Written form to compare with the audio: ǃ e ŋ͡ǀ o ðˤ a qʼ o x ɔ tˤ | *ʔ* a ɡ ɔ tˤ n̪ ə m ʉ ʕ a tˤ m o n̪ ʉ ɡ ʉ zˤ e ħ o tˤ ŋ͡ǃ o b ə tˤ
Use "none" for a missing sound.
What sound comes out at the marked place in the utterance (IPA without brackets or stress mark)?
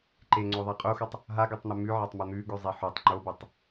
ɦ